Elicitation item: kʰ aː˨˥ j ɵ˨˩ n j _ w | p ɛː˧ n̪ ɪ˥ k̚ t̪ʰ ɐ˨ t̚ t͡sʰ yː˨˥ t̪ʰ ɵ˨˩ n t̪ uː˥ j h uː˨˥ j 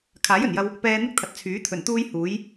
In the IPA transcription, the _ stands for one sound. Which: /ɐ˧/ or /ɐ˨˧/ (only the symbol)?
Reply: ɐ˧